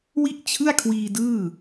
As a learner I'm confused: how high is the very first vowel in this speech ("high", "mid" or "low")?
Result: high